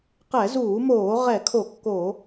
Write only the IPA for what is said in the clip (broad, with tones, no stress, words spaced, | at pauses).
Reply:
qɛ˧˩˧zuː˧˩˧moː˧˩˧ ʁɛ˧˩˧kʰo˧˩˧kːo˧˩˧